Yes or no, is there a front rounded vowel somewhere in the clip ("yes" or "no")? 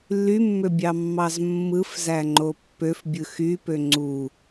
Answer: yes